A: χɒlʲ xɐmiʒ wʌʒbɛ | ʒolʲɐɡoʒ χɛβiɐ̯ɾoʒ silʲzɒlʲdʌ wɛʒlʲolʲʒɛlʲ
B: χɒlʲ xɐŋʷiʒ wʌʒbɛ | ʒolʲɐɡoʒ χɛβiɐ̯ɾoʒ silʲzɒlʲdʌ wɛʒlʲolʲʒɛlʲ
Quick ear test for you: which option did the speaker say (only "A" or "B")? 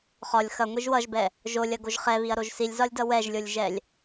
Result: B